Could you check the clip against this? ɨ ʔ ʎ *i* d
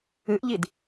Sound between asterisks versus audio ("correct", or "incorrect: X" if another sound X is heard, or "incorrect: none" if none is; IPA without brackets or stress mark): correct